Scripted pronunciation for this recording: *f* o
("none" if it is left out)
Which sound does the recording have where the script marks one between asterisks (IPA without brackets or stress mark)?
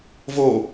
v